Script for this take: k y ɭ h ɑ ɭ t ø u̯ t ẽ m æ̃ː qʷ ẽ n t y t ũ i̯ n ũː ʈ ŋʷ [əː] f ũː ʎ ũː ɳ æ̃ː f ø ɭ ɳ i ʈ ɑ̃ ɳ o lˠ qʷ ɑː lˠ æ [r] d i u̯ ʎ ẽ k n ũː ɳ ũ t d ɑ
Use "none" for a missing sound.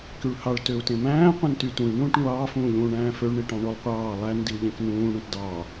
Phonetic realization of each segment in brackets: ɑː, n

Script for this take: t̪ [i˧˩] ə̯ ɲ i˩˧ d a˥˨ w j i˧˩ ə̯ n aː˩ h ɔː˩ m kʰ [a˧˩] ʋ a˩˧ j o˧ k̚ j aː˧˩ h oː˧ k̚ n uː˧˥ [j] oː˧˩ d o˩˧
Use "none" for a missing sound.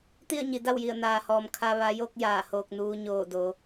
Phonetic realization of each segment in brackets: i˥˨, a˧, ɲ

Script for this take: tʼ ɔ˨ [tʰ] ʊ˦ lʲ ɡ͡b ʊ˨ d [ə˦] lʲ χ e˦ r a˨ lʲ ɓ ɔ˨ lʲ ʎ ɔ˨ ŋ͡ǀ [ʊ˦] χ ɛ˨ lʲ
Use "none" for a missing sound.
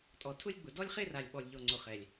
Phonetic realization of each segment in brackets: tʰ, ɔ˦, ʊ˨

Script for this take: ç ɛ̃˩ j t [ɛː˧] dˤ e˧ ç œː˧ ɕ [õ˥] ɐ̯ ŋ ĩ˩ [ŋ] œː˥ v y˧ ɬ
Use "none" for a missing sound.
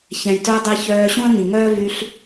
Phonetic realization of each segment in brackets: œː˧, ũ˥, ŋ

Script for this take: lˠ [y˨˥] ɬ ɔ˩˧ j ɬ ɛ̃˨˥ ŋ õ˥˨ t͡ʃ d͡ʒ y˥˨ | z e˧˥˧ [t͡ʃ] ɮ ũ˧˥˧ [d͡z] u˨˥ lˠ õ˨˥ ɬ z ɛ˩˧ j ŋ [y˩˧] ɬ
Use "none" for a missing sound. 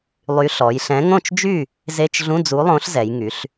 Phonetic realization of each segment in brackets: y˨˥, t͡ʃ, d͡z, y˩˧

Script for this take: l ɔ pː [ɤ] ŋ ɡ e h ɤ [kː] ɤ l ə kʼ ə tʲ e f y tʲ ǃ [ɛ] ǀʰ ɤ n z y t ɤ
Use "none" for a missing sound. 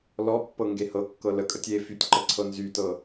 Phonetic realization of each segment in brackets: ɤ, kː, ə

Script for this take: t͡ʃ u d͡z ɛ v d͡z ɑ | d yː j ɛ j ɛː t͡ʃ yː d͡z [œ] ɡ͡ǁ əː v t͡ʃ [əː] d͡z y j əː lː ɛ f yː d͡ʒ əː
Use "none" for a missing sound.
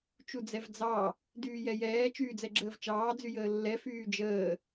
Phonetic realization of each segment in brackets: ɛ, ɑː

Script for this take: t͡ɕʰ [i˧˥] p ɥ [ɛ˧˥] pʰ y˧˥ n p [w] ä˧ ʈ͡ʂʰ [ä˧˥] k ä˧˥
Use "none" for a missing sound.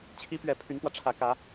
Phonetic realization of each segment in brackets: i˧˥, ɛ˨˩, w, ä˧˥

